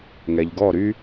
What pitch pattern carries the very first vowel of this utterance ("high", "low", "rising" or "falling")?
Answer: low